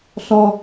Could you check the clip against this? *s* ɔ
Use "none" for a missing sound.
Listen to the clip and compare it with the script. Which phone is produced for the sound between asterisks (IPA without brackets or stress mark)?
s